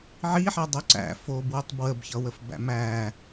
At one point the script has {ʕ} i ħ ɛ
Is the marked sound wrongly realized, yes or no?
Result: no